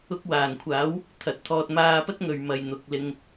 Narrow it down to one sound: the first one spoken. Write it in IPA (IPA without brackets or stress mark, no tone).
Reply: ʊ